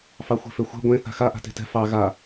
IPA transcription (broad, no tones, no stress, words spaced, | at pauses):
fɑxʷe̤føxʷɛ̤ ɡʷẽ θa̤xa ʔa̤te̤tɛ̤ fɑ ɣa